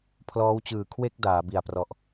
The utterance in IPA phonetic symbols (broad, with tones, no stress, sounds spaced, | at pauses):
pʰ l ɔː˦˥ w t͡ɕ ɯː˨˩ kʰ w e˥˩ k̚ d aː˩˦ b i˨˩ a̯ p r ɔ˨˩ ʔ